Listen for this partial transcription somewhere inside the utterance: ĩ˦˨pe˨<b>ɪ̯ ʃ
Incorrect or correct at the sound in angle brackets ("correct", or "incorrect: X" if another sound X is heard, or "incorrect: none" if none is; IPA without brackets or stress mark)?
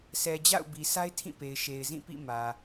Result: incorrect: none